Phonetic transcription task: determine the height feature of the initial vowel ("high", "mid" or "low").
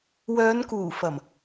mid